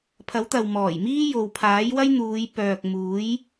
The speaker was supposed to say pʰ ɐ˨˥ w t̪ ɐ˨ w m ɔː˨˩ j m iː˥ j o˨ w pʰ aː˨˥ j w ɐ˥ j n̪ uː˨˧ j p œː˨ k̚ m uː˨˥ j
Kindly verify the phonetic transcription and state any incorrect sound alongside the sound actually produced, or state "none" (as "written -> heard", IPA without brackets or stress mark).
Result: none